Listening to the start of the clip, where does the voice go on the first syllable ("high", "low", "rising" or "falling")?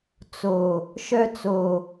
low